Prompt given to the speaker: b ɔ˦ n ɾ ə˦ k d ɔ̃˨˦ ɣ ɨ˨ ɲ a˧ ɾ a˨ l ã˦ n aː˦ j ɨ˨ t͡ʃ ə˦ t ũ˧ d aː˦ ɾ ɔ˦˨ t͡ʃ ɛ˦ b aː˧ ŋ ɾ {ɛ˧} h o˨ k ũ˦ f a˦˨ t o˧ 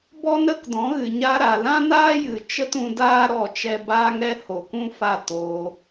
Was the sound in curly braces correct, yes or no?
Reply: yes